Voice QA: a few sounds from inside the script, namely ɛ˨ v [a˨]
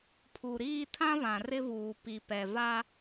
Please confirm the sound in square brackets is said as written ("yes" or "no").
no